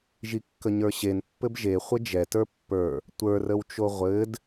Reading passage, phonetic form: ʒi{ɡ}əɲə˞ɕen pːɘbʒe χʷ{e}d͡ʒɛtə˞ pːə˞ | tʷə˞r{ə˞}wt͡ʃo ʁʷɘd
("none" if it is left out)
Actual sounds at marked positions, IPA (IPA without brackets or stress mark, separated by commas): kː, ɘ, ə